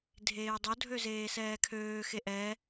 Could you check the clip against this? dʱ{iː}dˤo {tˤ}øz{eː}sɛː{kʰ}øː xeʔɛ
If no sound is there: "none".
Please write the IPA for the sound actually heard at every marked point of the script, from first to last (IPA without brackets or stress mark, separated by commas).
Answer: eː, dʱ, eː, kʰ